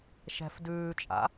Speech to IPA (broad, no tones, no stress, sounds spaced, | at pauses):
ʃ ɛ̤ f d ʉː t͡ʃʼ a̰